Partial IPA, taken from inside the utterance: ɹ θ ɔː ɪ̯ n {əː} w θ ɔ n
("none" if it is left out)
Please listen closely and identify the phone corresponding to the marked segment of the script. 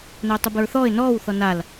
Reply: ɔː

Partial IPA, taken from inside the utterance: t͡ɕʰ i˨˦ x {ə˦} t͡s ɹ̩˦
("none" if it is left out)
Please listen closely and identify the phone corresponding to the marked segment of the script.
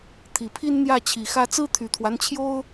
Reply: ä˦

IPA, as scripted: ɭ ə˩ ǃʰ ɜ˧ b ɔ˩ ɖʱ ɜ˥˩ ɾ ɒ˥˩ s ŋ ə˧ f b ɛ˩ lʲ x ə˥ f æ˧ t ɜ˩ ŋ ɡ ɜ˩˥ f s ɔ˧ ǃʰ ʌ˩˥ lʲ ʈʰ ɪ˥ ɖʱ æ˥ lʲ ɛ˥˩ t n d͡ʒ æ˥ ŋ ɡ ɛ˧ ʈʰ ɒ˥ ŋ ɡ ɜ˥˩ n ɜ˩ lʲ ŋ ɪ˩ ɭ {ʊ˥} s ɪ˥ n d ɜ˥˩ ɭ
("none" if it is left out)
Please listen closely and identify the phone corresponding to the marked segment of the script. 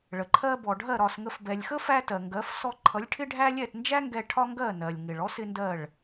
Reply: ɔ˥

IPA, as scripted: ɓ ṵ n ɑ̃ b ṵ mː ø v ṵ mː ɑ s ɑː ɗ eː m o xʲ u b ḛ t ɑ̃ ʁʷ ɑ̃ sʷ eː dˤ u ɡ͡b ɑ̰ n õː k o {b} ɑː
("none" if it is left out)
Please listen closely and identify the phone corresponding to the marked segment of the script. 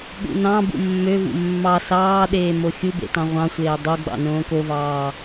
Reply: v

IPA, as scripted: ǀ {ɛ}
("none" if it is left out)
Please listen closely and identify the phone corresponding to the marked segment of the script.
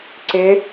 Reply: ɪ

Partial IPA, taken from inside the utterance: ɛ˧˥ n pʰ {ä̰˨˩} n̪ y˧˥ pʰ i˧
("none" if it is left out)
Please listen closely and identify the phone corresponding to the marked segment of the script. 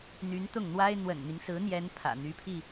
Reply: ä̰˨˩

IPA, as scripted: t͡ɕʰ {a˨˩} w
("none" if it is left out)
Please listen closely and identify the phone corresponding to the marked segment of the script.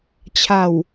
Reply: a˨˩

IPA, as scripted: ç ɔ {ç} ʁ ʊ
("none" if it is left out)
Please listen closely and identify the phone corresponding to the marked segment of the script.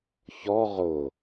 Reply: none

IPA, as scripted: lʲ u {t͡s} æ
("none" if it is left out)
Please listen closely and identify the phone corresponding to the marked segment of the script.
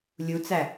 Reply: t͡s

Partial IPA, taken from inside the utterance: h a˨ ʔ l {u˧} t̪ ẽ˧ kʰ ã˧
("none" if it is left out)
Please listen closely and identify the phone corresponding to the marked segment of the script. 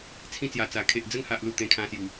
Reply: u˨˩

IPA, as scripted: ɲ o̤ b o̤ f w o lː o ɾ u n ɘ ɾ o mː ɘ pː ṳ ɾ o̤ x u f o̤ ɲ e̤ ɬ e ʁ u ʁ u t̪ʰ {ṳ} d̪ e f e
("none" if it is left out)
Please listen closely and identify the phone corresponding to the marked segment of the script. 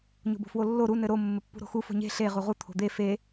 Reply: o̤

